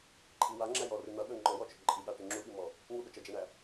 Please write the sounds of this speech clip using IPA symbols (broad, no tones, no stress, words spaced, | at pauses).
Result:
ǃʼi waŋ͡ǁæ jɔrɨ n̪ʌɠɵ ŋ͡ǃɔwɔt͡ʃɵ ǃʼiɠaʈɨ ŋ͡ǁuɓimɔ | ŋuɠɵ t͡ʃʌd͡ʒæɳæ